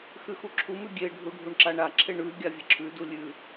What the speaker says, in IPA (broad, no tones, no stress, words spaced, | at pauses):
xʉxuǁʰumʉ ɡʲeɖʱu ɖʱuɳǁaɳaǁʰeɳ ʉ ɡʲavʲeǁʰʉdu lʲʉ